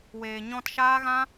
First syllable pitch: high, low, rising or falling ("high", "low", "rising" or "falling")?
low